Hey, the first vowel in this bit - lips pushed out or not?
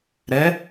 no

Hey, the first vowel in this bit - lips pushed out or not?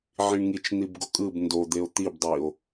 no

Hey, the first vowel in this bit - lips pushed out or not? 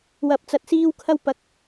no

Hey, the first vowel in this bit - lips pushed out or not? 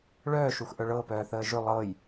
yes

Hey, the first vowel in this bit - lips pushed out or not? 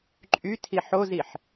yes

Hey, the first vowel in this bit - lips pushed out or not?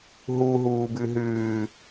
yes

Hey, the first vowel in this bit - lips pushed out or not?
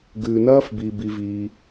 yes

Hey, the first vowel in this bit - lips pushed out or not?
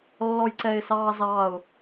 yes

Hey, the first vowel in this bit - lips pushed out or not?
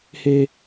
no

